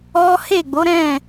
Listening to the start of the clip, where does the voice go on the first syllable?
high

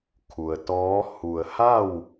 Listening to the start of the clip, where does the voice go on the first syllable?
low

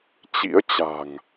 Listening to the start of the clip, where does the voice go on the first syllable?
rising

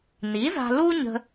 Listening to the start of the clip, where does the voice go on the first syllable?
rising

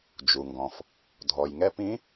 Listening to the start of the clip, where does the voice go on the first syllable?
low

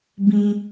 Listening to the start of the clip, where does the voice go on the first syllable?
high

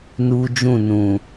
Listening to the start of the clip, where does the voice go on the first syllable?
high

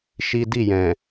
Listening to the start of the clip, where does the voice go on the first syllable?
high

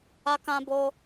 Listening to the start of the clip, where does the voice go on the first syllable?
high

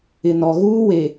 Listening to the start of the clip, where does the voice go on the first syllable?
low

